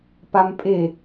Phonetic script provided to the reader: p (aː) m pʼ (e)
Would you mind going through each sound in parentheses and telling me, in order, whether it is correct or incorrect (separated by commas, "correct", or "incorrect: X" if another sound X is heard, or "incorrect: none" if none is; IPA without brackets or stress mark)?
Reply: incorrect: a, correct